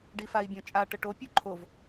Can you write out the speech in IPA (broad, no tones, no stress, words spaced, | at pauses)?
ɖifai̯bʲɔ̃t͡ʃʼa ʈəʈo pʲuǃʰov